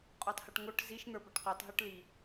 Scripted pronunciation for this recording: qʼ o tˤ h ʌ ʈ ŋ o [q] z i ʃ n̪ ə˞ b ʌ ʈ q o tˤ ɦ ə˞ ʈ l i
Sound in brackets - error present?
yes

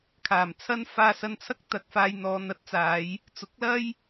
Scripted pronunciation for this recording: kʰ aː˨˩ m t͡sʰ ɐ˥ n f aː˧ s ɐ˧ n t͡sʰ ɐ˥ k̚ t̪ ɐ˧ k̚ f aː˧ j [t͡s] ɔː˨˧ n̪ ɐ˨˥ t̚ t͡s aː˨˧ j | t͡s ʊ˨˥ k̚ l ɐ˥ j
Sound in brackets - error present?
yes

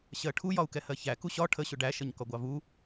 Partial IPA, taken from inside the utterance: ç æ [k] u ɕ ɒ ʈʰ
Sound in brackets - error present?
no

